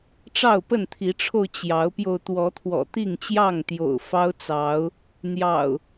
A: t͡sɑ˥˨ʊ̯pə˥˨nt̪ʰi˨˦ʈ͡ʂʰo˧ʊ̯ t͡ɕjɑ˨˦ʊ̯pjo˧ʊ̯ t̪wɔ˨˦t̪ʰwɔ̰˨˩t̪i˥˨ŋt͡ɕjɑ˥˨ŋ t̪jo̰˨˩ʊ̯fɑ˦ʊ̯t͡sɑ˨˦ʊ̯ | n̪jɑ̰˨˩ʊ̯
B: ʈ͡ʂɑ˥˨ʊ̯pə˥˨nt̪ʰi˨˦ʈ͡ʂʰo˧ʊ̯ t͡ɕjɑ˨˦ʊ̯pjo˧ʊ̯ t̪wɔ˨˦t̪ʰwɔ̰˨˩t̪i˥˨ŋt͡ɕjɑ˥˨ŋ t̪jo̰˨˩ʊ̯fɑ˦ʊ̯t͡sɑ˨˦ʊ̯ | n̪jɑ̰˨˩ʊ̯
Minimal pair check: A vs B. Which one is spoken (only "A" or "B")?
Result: B